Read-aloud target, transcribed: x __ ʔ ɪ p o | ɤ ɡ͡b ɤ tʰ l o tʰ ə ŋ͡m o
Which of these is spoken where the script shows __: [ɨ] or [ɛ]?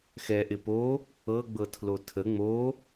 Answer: ɛ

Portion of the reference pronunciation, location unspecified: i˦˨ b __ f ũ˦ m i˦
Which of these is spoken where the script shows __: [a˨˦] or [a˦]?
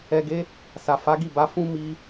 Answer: a˨˦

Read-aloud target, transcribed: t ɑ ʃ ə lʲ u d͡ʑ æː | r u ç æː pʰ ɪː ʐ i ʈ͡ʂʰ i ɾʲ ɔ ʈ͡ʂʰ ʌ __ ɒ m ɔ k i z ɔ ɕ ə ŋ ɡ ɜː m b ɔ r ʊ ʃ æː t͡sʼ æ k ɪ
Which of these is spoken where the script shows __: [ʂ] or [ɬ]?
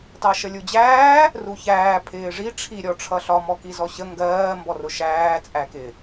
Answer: ɬ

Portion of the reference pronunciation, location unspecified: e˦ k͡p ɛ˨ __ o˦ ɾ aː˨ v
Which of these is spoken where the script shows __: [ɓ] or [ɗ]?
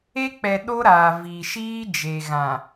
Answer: ɗ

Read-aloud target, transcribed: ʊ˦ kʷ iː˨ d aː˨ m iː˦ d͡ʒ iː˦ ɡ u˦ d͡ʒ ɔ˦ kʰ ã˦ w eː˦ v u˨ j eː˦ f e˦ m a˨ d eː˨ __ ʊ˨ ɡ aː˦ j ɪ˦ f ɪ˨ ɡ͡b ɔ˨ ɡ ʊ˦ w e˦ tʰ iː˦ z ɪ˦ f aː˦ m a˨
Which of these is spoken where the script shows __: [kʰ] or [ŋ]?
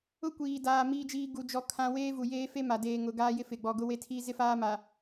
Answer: ŋ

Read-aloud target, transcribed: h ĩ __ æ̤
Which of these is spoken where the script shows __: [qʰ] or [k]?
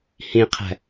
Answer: qʰ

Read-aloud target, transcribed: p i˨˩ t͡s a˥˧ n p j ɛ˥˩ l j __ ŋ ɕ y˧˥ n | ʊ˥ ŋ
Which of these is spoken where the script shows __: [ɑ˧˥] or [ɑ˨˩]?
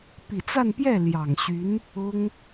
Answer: ɑ˨˩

